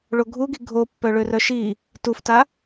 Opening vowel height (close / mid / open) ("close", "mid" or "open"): mid